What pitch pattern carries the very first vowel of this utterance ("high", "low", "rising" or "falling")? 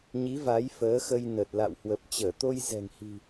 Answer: rising